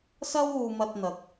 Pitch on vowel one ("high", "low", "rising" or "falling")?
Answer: high